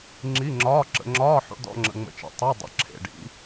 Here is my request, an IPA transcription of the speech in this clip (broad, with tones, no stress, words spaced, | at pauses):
ŋ͡ǁi˧˥˧ŋ͡ǁɒː˧˥˧ ǁə̰˨˦ ŋ͡ǁɒː˧˥˧ ħṵ˨˦dɔ̰˧˥˧ŋ͡ǁə̰˨ ŋ͡mə̰˨t͡ʃḛ˨ tˤe˧˥˧dˤə̰˨˦ ǁʰḛ˨ɖḭ˨˦